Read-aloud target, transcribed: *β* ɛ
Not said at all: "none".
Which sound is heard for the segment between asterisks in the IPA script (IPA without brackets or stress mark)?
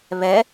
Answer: β